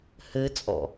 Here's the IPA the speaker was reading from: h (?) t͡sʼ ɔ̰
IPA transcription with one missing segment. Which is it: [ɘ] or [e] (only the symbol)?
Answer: ɘ